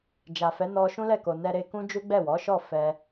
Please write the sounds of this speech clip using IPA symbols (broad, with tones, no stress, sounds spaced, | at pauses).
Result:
d͡ʒ a˨ f ɛ˨˦ n ɔ˧ ʃ ũ˦ l ɛ˦˨ k o˨ n ɛ˧ ɾ e˧ k ũ˦ d͡ʒ u˦ ɡ͡b ɛ˦˨ w ɔ˨˦ ʃ ɔ˦˨ f ɛ˧